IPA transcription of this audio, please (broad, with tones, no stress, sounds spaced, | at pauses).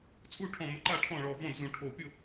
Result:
t͡sʼ u˥˩ ʈʰ ɔ̃˧˩ m ə˧˩ ǃ a˥˩ ʈʰ ɔ̃˥˩ ɭ ɔ˧˩ v ɔ̃˥˩ d z ũ˧˩ ʈʰ o˧˩ pʲ ʊ˥˩